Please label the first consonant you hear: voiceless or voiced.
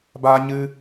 voiced